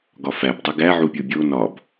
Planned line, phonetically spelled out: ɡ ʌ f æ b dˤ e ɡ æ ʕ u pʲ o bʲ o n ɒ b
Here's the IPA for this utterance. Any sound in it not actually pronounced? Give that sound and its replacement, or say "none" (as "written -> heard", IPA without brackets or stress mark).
ʌ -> ɒ